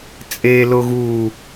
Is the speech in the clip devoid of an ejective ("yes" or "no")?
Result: no